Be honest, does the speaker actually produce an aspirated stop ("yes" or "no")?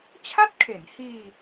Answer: yes